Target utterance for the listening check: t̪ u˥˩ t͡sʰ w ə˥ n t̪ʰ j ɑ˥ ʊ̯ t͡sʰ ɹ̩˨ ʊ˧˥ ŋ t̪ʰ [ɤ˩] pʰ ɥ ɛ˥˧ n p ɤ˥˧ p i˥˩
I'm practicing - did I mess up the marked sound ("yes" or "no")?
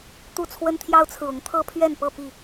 yes